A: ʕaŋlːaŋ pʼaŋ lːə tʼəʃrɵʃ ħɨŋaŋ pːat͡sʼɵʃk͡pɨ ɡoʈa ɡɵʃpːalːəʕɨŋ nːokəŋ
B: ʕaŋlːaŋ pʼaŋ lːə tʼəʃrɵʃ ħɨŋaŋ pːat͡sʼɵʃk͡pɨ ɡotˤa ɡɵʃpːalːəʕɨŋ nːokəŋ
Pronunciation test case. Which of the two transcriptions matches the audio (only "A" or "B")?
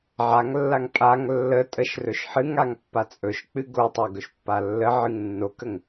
B